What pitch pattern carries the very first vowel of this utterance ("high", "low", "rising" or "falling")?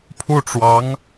falling